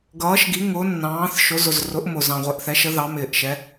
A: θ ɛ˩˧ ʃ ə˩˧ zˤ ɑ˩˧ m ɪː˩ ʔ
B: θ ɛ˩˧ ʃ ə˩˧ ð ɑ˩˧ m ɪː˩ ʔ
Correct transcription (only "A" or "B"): B